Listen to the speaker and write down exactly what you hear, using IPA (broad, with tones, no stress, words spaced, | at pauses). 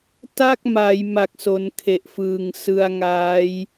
ta˥˩k̚ma˩˦j ma˨˩k̚so˩˦n kʰe˨˩ʔfɯː˨˩ŋ sɯ˧a̯ŋaː˦˥j